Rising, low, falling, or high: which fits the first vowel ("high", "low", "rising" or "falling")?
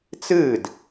falling